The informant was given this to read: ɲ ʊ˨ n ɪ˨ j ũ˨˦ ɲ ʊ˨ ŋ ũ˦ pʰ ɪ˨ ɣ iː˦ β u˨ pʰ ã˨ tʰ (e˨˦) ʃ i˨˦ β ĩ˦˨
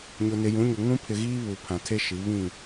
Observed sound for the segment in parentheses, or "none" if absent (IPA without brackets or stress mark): e˦